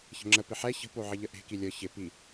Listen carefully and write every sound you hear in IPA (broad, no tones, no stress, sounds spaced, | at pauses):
ç ə̤ ŋ͡ǁ ə p ɪ ħ ɛ ç ə̤ p o ʕ ɪ ʎ ə ʔ e̤ k i lʲ ɤ ç ɪ p i